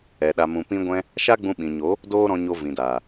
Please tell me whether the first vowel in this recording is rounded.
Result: no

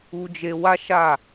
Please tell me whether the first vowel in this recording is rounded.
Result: yes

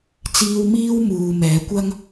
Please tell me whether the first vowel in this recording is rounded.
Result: no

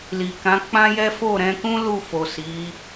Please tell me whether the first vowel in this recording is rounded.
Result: no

